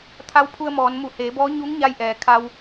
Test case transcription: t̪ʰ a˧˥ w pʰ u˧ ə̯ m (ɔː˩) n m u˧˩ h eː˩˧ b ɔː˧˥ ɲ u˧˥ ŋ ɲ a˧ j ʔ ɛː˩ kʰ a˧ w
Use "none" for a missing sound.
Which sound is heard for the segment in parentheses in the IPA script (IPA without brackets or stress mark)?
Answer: ɔː˩˧